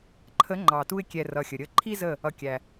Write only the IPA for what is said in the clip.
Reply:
ǃʰ ə˨˦ ŋ͡ǃ ɑ˨ t u˧ ɪ̯ kʲ ɛ˨ r ʌ˨ xʲ ə˨ ɾʲ ə˧ ǃʰ i˦ z ə˦˨ | ʌ˨ kʲ æ˨

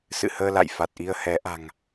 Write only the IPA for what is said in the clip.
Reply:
s ɨ̰˧˨ h əː˧ l a̰˧˨ j f a˨˩ t̚ ʔ i˧ ə̯ h ɛ˨˦ ʔ a̤˨˩ ŋ

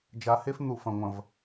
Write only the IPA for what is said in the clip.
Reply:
d͡ʒ a˨˦ h e˦ f n̪ u˨ f ɐ̃˨ ŋʷ ɐ̃˨ v

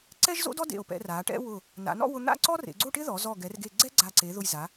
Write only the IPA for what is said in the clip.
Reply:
ǀ ɛ˥ ʒ z o̰˥ d ɔ˥ d ḛ˧˩ o̯ p ɛ̰˧ r a˩˧ ʈ ɛ̰˥ w ʊ˧˩ | n a̰˩˧ n ɔ̰˥˧ w ʊ˧ n̪ a̰˥˧ ǀ ɔ˥ r ḛ˩˧ ɡ͡ǀ o˥˧ ʈ ɪ˥ ð ɔ˩˧ z ɔ˧˩ ɡ ɛ˩˧ r ɡ e˧˩ ɡ͡ǀ ɛ˥ ɡ͡ǀ a˧˩ ǀ e˩˧ ð ʊ˧˩ j z a˩˧

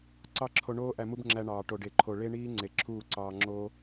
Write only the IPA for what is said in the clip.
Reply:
ǀ ɑ˦ ǁʰ o˧ ɳ oː˦ ʔ æ˧ m u˦ b ŋ͡ǁ æ˧ ɳ ɑː˨ ʈ o˨ ɖ e˨ ǃʰ o˨ ɭ e˦ ɳ iː˦ ŋ͡ǀ e˨ ǁʰ uː˦˨ ǀ ɑː˧ ŋ͡ǁ oː˦

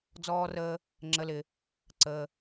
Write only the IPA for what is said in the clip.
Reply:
d͡z ɔː˧ r əː˧ | ŋ͡ǁ ə˧ l ɪ˧ | ǀ əː˧

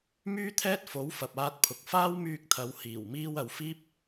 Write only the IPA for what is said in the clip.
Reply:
m yː˥ t̪ʰ ɛː˥ t̚ f o˨˥ w f ɐ˨ p̚ aː˧ t̚ pʰ ʊ˨ k̚ f aː˥ w m yː˧ k̚ t̪ʰ ɐ˨˧ w h iː˨˩ w m iː˥ w ɐ˨ w f iː˥ p̚

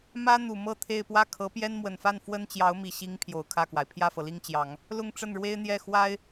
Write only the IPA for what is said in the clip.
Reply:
m ä˥ n̪ u˨˩ m ɤ˥˧ t̪ʰ e˥˧ ɪ̯ p w ä˥˩ kʰ ɤ˧˥ p j ɛ˥ n m w ə˨˩ n f a˥˩ n f w ə˥ n t͡ɕ j ɑ˧˥ ʊ̯ m i˨˩ ɕ i˧˥ ŋ pʰ j o˨˩ ʊ̯ kʰ ä˥˩ k w a˩ ɪ̯ pʰ j ä˥˩ f ɤ˩ l i˥˩ ŋ t͡ɕ j ɑ˨˩˦ ŋ | l ʊ˥˧ ŋ ʈ͡ʂ ə˥˩ n ɻ w e˥ ɪ̯ n̪ j ɛ˥˩ x w a˥ ɪ̯

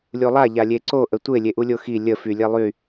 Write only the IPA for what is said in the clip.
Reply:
lʲ u lˠ a ʎ a lʲ e ǀ o ʔ ə tʷ e lʲ e ʔ u lʲ o x i lʲ ə f y lʲ e lˠ y

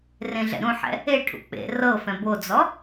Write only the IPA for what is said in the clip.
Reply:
r ẽ ɮ ɛ̰ ɾ ũ ħ ɛ̰ | e ʈʰ ṵ k͡p ḛ r ɤ f ɛ̃ b o d͡z ɔ

